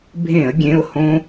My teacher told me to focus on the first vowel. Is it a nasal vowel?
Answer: yes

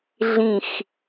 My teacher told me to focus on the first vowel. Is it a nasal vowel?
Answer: yes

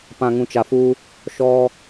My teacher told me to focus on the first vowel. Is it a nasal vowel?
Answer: yes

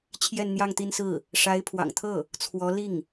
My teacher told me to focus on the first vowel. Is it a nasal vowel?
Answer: no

